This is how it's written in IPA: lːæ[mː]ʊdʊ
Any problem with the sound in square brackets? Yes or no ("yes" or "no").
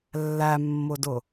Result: no